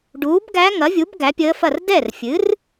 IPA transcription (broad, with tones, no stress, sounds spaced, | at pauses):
ɖ uː˩˥ b ɡ æ˧˥ ŋ ɐ˩˥ vʲ u˩˥ b ɡ æ˩˥ pʲ əː˧˥ f ɐ˥˩ r d ɛ˥˩ r fʲ ɨ˩˥ r